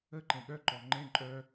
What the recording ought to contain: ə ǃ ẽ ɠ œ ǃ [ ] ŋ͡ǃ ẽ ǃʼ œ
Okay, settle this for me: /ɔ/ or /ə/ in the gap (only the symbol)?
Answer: ɔ